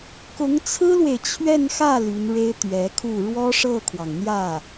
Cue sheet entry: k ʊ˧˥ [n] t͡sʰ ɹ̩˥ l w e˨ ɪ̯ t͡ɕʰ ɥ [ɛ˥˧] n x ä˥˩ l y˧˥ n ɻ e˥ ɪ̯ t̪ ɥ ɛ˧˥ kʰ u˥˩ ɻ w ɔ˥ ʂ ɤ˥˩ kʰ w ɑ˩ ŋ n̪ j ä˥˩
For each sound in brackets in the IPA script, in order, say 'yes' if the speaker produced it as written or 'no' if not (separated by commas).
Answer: no, yes